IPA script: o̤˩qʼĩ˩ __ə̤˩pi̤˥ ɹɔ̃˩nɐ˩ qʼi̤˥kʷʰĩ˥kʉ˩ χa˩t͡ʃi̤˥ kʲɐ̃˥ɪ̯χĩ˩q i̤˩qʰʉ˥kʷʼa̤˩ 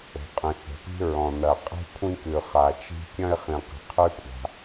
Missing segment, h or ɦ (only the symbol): h